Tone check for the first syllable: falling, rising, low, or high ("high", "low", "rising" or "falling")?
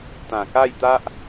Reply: low